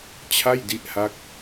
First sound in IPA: t͡ɕʰ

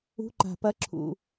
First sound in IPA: ṳ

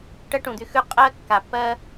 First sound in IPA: ʈ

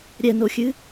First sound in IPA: ɾʲ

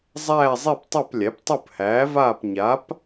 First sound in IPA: zˤ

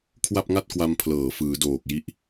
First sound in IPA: kʰ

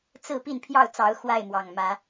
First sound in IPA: t͡s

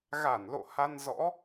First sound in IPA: ɣ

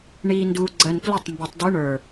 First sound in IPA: ɳ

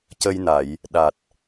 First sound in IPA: c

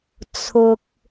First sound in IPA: t͡sʰ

